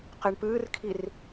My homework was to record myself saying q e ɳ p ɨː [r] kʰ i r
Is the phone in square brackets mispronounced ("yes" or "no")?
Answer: no